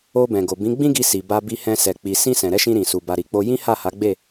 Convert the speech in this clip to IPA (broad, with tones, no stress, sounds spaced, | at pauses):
o˧ b ɛ̃˨ ɡ o˨ b ĩ˨˦ ɡ͡b ĩ˦ ɡ i˧ s i˨ b a˧ b i˧ h ɛ̃˧ s ɛ˨ k͡p i˨ s ĩ˧ s ɛ̃˨ ɾ ɛ˨˦ ʃ ĩ˧ ɾ ĩ˨ s u˨ b a˨ ɾ i˨ k͡p o˧ j ĩ˦ h a˦˨ h a˨˦ ɡ͡b e˦˨